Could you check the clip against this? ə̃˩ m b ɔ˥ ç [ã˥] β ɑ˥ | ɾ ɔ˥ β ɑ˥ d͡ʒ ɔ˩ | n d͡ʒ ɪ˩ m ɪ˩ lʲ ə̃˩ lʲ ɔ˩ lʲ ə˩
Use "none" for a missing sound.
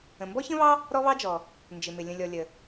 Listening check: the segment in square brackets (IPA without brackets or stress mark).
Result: ə̃˥